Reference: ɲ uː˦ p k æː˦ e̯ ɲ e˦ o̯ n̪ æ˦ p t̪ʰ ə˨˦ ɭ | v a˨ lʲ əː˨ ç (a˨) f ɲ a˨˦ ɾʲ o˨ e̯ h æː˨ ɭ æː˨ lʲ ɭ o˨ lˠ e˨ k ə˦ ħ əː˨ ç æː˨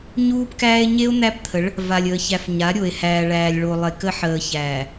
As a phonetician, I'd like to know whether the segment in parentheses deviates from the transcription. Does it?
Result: yes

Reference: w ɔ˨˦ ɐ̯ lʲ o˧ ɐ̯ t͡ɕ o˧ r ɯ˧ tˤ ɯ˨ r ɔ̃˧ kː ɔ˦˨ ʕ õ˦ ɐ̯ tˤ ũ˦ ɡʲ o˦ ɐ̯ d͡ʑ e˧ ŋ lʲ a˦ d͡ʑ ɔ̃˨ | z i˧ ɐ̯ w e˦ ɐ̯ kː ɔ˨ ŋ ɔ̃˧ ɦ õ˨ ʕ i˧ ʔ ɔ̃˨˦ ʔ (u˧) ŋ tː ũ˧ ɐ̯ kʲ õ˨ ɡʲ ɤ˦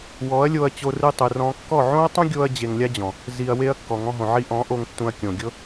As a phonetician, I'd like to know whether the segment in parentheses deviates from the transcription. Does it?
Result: yes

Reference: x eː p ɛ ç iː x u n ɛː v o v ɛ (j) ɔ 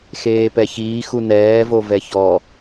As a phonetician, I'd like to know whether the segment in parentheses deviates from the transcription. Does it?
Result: yes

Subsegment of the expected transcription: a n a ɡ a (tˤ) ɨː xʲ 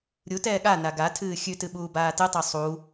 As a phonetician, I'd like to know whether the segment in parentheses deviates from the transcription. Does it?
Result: yes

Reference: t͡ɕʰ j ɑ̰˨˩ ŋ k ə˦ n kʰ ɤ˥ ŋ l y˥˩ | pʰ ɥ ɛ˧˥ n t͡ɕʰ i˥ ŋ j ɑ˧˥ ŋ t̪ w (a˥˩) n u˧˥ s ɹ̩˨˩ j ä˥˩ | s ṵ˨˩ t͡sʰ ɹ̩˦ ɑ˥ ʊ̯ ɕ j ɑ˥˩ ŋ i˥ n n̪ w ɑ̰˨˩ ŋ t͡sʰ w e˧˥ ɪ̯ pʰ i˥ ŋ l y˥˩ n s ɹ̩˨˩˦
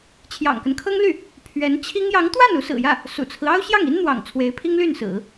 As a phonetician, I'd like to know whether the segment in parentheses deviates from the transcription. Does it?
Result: no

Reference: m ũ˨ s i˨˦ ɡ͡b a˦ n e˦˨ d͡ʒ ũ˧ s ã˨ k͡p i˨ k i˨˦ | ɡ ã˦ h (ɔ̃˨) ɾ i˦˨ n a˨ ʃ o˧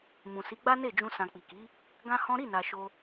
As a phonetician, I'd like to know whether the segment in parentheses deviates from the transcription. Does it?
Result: yes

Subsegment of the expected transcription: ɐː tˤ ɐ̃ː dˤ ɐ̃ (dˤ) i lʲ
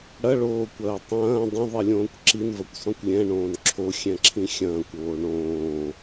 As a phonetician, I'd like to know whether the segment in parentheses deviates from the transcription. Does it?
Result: yes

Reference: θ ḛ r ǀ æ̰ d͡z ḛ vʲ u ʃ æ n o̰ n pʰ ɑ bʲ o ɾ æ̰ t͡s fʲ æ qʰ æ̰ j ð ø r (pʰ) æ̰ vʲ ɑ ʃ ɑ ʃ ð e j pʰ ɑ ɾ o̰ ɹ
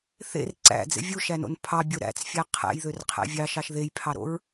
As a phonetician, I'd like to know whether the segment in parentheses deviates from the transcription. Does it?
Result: yes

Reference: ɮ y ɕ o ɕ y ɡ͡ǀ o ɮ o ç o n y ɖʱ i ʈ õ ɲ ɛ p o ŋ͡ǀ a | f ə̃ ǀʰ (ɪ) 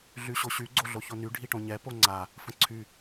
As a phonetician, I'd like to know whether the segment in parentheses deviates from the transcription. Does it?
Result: yes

